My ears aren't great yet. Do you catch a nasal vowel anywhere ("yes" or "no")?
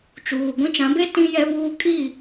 yes